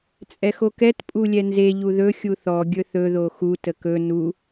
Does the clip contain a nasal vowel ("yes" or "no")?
no